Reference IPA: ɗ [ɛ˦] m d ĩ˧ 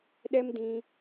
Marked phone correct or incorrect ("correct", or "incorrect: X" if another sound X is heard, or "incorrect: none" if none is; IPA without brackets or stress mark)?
correct